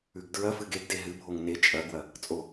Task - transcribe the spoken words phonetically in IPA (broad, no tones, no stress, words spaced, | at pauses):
ʉɡdɹɐfɨɡ eɡde ɦɨbʱoŋ ne t͡ʃʼɐɡwɐ | t͡sʼo